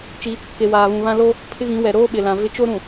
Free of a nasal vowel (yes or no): no